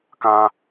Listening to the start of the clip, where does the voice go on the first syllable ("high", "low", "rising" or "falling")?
high